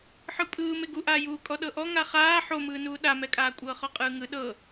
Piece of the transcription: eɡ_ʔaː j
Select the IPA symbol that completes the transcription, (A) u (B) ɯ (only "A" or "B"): A